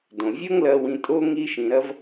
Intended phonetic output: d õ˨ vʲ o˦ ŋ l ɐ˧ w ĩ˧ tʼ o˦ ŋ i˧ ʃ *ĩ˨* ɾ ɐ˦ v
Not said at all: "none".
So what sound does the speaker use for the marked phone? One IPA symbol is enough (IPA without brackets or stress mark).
ĩ˨